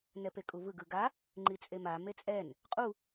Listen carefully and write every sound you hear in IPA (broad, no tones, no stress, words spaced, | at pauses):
nɛpekʼuvɯ ɡɯɡa | ŋ͡ǃit͡sʼema met͡sʼɛn | qʼu